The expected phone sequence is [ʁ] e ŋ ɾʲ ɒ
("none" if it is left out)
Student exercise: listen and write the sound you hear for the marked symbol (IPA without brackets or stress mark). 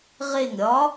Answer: ʁ